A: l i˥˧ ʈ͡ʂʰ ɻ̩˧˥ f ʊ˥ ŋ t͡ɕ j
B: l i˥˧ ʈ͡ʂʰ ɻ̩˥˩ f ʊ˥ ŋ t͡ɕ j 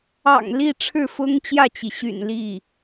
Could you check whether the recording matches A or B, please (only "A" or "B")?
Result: B